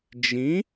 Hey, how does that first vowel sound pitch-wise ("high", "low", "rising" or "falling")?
rising